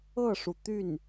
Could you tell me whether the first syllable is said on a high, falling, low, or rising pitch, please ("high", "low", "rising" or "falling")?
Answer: falling